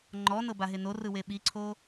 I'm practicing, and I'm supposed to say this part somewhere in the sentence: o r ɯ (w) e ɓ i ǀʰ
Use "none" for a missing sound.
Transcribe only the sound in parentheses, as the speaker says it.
w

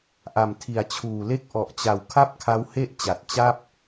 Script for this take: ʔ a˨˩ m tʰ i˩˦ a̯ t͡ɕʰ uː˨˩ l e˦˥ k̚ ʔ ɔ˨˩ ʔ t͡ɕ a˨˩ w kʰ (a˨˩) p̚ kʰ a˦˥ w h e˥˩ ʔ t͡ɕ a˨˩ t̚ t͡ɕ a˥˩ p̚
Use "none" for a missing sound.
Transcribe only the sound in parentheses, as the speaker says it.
a˥˩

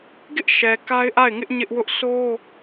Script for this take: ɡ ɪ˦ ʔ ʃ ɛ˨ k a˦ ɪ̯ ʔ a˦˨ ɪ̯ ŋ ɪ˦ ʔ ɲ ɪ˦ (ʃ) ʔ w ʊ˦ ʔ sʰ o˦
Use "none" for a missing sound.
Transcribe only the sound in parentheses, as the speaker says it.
none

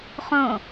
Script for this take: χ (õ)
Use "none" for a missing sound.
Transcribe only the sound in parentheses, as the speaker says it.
õ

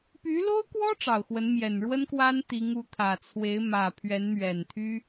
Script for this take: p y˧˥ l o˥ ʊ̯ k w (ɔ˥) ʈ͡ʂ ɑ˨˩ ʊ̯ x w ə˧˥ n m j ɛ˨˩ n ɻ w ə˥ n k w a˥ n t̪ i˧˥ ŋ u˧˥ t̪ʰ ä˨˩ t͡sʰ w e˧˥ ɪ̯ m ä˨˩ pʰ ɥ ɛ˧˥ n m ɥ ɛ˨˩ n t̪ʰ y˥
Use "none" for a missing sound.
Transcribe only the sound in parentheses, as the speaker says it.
ɔ˥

